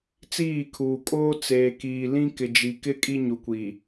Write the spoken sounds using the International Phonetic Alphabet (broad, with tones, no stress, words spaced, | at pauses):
t͡siː˦˨kʰuː˨kʼoː˦ t͡seː˨kiː˨lĩ˦ kɪ˨d͡ʒi˨kɪ˦ kʼi˦ɲu˨kʷi˨